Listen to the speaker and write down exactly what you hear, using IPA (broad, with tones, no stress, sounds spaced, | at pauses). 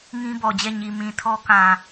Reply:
ŋ ĩ˦ b ɔ˨ d͡ʑ ɛ˦˨ ɲ i˨ m ĩ˨ tʰ ɔ˦ k ã˨